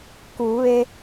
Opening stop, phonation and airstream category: plain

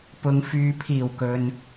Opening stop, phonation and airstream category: plain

